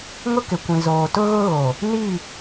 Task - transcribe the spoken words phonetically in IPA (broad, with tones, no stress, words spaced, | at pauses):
ŋʊ˦kɪ˨kʷĩ˨ zoː˨ tʊ˦ɣʊ˦ ɣo˨ | ni˦˨